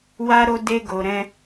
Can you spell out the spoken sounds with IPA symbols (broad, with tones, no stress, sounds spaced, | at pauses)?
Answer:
w a˦ ɾ o˦ d e˦ ɡ o˧ ɾ ɛ̃˦